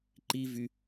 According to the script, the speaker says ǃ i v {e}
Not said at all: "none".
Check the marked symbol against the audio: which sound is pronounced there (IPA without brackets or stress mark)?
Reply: y